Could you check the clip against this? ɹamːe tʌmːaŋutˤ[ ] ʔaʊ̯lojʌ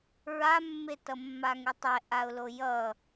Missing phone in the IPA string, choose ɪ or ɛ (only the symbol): ɛ